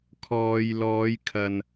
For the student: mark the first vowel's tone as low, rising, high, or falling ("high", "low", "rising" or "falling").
low